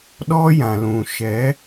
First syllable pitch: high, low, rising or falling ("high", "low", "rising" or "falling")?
high